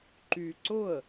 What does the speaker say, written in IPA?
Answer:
ǃ y ǀ ʊ ə̯

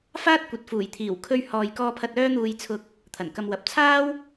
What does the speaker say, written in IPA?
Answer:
f aː˥ t̚ kʷ ɐ˨ t̚ f uː˨˩ j t̪ʰ iː˨˩ w kʰ ɵ˧ ɥ h ɔː˨ j k ɔː˧ pʰ ɐ˧ t̚ œː˥ n̪ uː˧ j t͡sʰ ʊ˧ k̚ | t̪ʰ ɐ˨˩ n k ɐ˧ m w ɐ˨ p̚ t͡sʰ aː˥ w

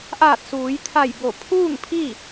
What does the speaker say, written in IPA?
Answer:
ʔ aː˧˩ t̚ s uː˩˧ j t̪ʰ a˧˩ j b o˧˩ pʰ uː˥˨ ŋ pʰ i˥˨

